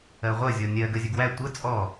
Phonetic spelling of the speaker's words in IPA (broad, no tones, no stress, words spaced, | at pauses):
ɜʁʷɐ zʲɔnʲɜ ɡəzʲɐɡwæ tʷə t͡sʼɔ